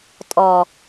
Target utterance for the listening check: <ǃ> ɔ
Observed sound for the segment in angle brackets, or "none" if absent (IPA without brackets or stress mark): tʼ